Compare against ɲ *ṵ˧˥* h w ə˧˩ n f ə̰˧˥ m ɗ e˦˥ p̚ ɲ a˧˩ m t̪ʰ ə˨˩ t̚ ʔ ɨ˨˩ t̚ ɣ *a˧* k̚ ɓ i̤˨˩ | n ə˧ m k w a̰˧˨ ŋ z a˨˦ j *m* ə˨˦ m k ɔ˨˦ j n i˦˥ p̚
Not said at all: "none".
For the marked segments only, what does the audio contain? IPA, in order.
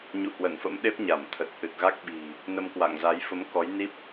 ṵ˧˨, a˦˥, f

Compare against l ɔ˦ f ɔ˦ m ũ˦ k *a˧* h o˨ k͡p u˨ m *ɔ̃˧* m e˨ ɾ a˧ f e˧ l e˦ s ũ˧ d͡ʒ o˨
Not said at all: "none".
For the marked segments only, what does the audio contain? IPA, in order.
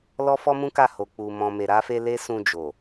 a˦˨, ɔ̃˨

